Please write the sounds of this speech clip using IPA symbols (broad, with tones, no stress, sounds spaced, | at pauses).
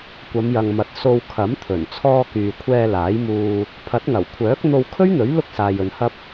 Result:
kʷ ɐ˨˧ m j ɐ˨ ŋ m ɐ˨˥ t̚ s o˧ w kʰ ɐ˨˥ m t̪ʰ ɵ˨˩ n t͡sʰ ɔː˧ k yː˨ kʷʰ ɛː˧ l aː˨˥ j m uː˧ | pʰ ɐ˨˥ t̚ ŋ ɐ˨˩ w kʷʰ œː˨˥ k̚ n̪ o˧ w kʰ ɵ˥ ɥ n̪ ɵ˨˥ ɥ l ʊ˥ k̚ s aː˨ j ɵ˨ n h ɐ˧ p̚